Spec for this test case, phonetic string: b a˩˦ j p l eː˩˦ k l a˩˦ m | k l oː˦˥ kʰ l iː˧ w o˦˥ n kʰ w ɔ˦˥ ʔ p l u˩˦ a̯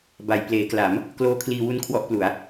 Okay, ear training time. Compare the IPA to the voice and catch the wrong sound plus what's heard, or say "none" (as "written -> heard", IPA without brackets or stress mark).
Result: o˦˥ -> u˦˥